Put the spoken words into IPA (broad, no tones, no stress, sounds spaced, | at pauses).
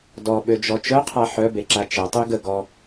d ɔ ɓ ø d͡ʒ ɔ t͡ʃ œ qʰ a ħ œ b e ǁ a t͡ʃ ɛ tˤ y ɡ ə ɡ ɔ